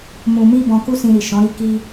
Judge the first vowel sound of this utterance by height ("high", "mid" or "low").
high